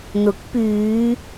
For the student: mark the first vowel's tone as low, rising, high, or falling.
rising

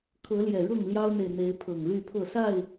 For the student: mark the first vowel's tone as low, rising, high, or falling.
rising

